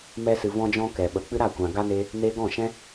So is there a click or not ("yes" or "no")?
no